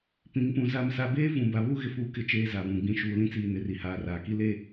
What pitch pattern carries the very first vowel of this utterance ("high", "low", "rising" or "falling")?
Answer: rising